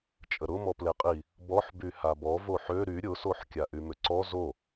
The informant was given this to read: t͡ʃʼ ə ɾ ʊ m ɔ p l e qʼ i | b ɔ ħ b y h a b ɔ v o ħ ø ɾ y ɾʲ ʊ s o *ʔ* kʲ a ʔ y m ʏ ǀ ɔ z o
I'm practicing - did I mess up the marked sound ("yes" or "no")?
yes